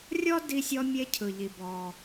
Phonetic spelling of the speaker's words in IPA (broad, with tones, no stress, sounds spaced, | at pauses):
rʲ ɔ˥ d i˧ sʲ ɔ˧ mʲ e˧ cʰ ɯ˩ ʎ i˩ b ɔ˩